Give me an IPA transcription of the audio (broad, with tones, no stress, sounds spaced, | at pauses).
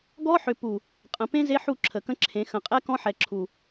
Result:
ɡ ɔ˦ ħ ʏ˨ p u˨ | qʼ ə̃˨ p ẽ˦ z e˦ ħ u˦˨ ǁʰ ə˨ k ə̃˦ ǁʰ ẽ˨˦ x ə̃˨ qʼ ɛ˦ k ɔ̃˦ ħ ɛ˨ ǁʰ u˨